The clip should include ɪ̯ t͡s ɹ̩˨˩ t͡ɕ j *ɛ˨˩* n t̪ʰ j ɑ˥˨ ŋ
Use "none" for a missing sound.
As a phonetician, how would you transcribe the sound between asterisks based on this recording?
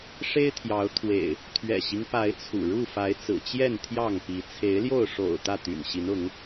ɛ˥˨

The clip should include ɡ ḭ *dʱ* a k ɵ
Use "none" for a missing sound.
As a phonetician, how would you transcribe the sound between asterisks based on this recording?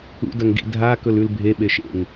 dʱ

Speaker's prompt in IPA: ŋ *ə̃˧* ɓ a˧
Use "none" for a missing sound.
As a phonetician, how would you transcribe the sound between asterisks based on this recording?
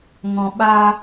ɔ̃˧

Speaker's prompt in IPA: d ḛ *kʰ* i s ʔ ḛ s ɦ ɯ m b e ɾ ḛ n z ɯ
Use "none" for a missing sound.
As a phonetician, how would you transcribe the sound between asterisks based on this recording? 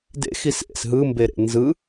x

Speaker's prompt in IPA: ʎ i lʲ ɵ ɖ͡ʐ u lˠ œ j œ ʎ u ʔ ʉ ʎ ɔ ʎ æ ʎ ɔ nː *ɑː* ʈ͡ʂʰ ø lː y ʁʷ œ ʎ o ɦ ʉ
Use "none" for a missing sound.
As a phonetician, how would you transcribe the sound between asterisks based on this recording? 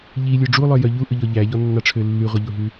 ɑ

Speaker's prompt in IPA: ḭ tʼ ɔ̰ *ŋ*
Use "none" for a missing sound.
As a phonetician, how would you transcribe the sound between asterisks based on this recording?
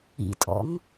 ŋ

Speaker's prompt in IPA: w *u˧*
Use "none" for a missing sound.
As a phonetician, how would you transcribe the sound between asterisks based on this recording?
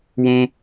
ũ˧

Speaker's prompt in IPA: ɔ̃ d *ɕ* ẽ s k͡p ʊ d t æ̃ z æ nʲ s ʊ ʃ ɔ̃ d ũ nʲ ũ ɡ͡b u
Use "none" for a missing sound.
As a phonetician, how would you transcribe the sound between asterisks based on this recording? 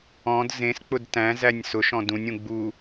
z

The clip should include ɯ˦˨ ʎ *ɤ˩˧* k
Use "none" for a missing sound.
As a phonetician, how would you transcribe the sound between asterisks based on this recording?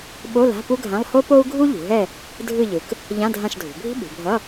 ɯ˩˧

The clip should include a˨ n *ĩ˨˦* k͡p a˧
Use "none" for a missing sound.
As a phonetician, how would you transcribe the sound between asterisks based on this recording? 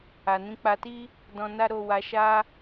ĩ˨˦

